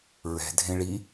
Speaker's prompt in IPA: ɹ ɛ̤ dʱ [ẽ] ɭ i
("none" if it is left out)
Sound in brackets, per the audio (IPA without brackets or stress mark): ẽ